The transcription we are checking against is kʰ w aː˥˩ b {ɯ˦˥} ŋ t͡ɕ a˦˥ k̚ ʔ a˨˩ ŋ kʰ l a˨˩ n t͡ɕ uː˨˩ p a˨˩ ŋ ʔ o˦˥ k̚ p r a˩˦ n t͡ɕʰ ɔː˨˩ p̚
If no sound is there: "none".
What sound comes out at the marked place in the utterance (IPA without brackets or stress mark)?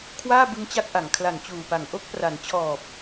ɯ˦˥